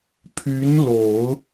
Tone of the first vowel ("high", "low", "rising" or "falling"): rising